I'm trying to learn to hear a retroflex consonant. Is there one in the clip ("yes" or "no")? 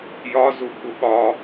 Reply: no